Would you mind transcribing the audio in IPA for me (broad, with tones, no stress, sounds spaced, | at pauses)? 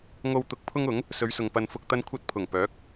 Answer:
ŋ o˧ w t̪ ʊ˧ k̚ pʰ ʊ˥ ŋ ʊ˨˥ ŋ | s ɵ˨˧ ɥ s ʊ˨ ŋ p ɐ˨ n f ʊ˨ k̚ t̪ ɐ˧ n kʷʰ ɐ˧ t̚ pʰ ʊ˨˩ ŋ p œː˨˥ k̚